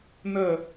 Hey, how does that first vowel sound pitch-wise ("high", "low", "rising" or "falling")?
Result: falling